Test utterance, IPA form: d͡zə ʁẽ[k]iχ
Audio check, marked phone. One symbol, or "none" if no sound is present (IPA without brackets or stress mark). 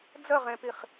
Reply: p